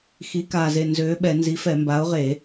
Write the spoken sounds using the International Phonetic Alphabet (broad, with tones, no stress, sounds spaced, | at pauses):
x i˨˥ k aː˧˩ z e˧˩ n z øː˨˥ ɓ ɛ˧˩˧ n z i˨˥ f ɛ˧˩˧ m b a˨˥ ʊ̯ ʁ e˧˩˧